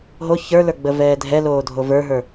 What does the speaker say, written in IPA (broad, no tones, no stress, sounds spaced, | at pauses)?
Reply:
ɦ o ç ə˞ l ə˞ ɡ͡b ə v ɛː dʱ ɛ l oː dʱ o v ə˞ ɦ ə˞